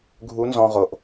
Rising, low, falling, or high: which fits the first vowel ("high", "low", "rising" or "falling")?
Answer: rising